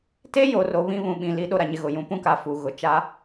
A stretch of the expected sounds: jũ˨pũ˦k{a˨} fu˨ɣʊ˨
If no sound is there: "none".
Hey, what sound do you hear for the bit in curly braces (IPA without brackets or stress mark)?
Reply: a˨